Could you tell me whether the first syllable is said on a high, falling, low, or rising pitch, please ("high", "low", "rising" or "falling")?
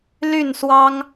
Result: falling